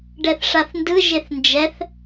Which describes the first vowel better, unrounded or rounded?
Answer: unrounded